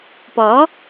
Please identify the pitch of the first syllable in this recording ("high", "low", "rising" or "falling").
rising